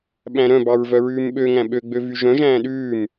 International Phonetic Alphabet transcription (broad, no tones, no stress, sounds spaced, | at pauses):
ɓ æ̃ ɾ œ̃ b ɑ ɹ v œ ɹ ʉː m ɓ ø ŋ æ̃ ɓ ø ɡ͡b ø v y ʒ œ̃ ʒ æ̃ː ɗ ʉː m